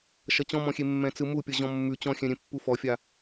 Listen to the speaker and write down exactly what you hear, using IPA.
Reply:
ʃ ʌ t͡ɕ ɔ̃ m ɔ̃ xʲ e mː ɛ̃ t͡s ɯ m u pʲ ʌ ʑ ɔ̃ mː ʉ t͡ɕ ɔ̃ xʲ ɛ̃ ɾʲ ẽ pː u f ɔ fʲ a

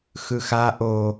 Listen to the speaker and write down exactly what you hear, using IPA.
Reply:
x ɯ x a ʔ o

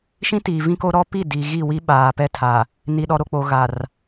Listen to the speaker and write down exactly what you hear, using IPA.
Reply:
ʃ ĩ˦ t iː˨ v ĩ˦ k o˦ ɾ ɔ˦ p i˦˨ d i˨ ɣ i˦˨ w i˦ ɓ aː˨ p ɛ˦ tʰ a˨ | n i˨ ɗ ɔ˨ ɾ o˨ k͡p o˨ ɣ a˨ r

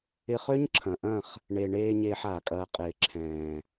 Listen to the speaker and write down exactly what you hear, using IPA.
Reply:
ɪ˧ χ ø˦ ɲ ǁʰ ɐ̃˨ ʔ ɐ̃˦˨ χ | ɳ e˨ ɳ eː˧ ɲ eː˧ ħ aː˨ kʼ ɐː˧ qʼ ɪː˨ ǁʰ ɛ̃ː˨

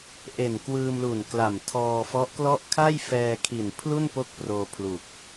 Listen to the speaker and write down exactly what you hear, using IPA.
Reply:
ʔ e˨˩ n k w ɯː˧ m l u˨˩ n k l a˨˩ m tʰ ɔː˧ f ɔ˦˥ ʔ k l ɔ˥˩ ʔ kʰ a˥˩ j f ɛː˧ kʰ i˨˩ n pʰ l u˥˩ n p o˥˩ k̚ p r oː˧ pʰ l u˨˩ k̚

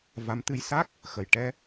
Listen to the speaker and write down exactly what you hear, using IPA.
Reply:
v a˧˥ m t̪ ɨ˧ j s a˦˥ k̚ | x ə˨˩ j ʈ ɛ˧

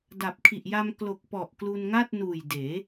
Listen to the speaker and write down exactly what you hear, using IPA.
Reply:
d a˨˩ p̚ kʰ i˨˩ ʔ j a˧ m k l o˨˩ k̚ p ɔ˨˩ ʔ k l u˧ n ŋ a˥˩ t̚ n uː˨˩ j d eː˩˦

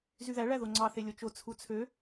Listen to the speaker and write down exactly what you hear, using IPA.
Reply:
z y ð æ ɭ æ ð o ŋ͡ǀ ɑ θ e lʲ o t͡ʃ o t͡sʰ u t͡sʰ ø

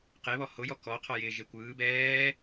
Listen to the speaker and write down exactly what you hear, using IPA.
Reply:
q e β ɔ h o j ɔ k ɔ qʰ ɔ j ɪː ʒ e kʷ ɯː b ɛː

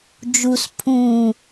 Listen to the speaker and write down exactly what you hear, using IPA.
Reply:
d͡ʒ u s pʰ ũ

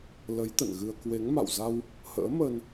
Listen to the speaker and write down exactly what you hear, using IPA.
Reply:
l ə˨˦ j t̪ ə̰˧˨ n ɣ ɨ˧ ə̯ k w e˨˦ ŋ m a̰˧˨ w z a˧ w | h ə̰ː˧˥ m ə˧ n

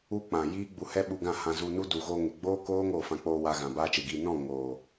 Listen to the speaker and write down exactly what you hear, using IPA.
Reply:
u˦ k͡p ã˨ j iː˦ ɡ͡b u˧ h ɛ˦ ɓ u˧ ɡ ã˦˨ h ã˧ z u˧ n u˦ d u˨ ɣ oː˧ ŋ e˨ ɡ͡b oː˦ k oː˦ ŋ oː˦˨ f ã˧ k͡p oː˧ w a˧ ɣ ã˨ b aː˦ t͡ʃ e˨ ɡ iː˧ n ɔ̃˦˨ ŋ oː˨

